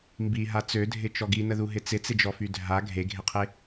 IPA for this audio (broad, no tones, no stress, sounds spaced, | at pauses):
m b i ɦ a t͡s ø dʱ ɪ t͡ʃ ɔ ɡ i n ə ð u ɦ ɪ t͡s ɪ t͡s ɪ d͡ʒ ɔ f y dʱ a ɡʱ e ɡʱ e qʰ e